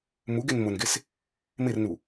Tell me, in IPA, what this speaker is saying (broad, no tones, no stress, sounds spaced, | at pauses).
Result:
m u ɡ ɪ n m ʊ n ɡ ɪ s | m ɪ r n u